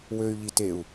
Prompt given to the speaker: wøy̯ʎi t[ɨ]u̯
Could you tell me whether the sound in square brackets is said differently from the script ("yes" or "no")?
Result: yes